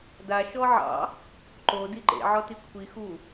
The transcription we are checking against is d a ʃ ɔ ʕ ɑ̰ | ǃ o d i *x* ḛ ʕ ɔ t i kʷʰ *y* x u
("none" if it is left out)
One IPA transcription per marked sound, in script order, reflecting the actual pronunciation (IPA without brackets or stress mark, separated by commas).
ǃ, i